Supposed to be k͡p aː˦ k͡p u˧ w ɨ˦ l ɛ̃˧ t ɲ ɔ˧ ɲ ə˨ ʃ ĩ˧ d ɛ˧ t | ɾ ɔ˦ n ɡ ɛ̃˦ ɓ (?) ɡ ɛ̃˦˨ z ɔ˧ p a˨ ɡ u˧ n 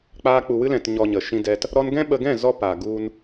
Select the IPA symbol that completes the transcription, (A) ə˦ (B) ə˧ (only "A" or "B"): B